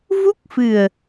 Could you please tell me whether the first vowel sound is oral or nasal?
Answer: oral